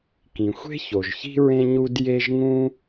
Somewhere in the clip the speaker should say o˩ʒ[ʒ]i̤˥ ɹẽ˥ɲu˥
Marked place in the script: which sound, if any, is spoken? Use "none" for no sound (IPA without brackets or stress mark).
ç